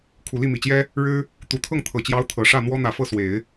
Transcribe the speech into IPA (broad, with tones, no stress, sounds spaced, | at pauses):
kʰ u˨˩ l i˥˩ m i˨˩ t͡ɕ j ɛ˥ | ɻ ɻ̩˥ | t̪ u˨˩ t̪ʰ ɤ˥˩ ŋ t̪ʰ ɤ˨˩ t͡ɕ j ɑ˧˥ ʊ̯ t̪ʰ ɤ˨˩ ʂ ä˥˩ n̪ w ɔ˥ n̪ ä˨˩ f ɤ˥˩ s w e˨˩˦ ɪ̯